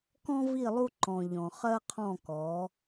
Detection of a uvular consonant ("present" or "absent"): present